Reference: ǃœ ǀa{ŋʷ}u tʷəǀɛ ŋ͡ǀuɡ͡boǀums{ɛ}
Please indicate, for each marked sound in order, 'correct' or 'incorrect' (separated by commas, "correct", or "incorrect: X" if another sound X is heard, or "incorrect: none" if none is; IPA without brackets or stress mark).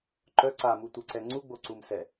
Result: incorrect: m, correct